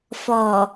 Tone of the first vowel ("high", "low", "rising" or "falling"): low